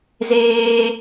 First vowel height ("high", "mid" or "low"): mid